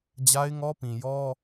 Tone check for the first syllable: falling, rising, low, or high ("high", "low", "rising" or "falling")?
high